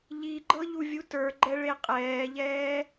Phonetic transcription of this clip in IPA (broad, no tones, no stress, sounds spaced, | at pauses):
ʎ i ɡ͡ǃ ɤ ʎ u vʲ u t ə˞ ɡ͡ǃ ɛ ɭ e qʼ ɛː ʎ ɛː